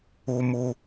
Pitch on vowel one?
low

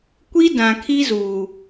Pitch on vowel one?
high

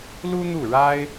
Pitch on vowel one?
high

